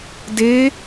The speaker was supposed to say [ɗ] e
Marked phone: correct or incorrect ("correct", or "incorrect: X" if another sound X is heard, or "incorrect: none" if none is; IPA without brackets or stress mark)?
incorrect: d